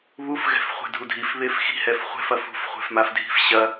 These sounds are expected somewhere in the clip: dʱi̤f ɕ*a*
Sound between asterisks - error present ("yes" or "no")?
yes